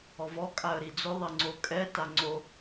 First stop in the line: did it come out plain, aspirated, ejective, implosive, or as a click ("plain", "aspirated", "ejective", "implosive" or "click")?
ejective